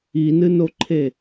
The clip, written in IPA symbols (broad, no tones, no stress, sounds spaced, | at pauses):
i n ɨ n o ǃʰ e